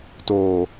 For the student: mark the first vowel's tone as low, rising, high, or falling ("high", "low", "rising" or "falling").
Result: low